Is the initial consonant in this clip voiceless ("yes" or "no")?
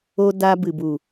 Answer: no